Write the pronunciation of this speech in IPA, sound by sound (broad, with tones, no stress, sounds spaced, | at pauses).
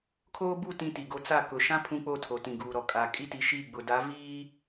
kʰ oː˦ b u˦˨ t ĩ˦ t i˨ ɡ o˦ t͡s a˦˨ k ʊ˨ ʃ ã˦ pʰ ũ˦ k͡p o˦˨ tʰ o˨ t ĩ˨ ɡ uː˨ ɾ ɔ˨ kʼ a˨ kʼ i˦ t i˨ ʃ i˦˨ ɡ͡b ʊ˨ d a˨˦ v iː˦